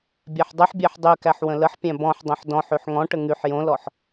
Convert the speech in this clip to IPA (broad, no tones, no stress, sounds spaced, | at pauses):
bʲ æ ħ dˤ ɨ ħ bʲ æ ħ dˤ y k æ ħ w ə̃ l ə ħ pʲ æ̃ b ɔ̃ ħ dˤ õ ħ d ɔ̃ ħ y ħ ŋ ɔ̃ ʈ ə ŋ y ħ j õ l ɔ ħ